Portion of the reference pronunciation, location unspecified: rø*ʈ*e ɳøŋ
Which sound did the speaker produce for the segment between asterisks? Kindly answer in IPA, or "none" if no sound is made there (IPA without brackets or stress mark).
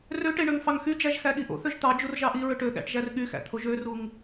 ʈ